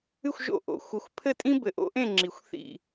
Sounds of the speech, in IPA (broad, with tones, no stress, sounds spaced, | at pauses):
ɨ˥˧ xʷ ʒ o̰˥˧ ʔ o̰˧ xʷ ɘ˧ xʷ pʰ ɘ˥˧ tʼ ĩ˥ b ɘ˧ ʔ o̰˥ ʔ ẽ˥˧ ŋ͡ǁ i˧ xʷ θ ḭ˥˧